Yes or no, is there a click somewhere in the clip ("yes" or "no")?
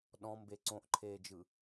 yes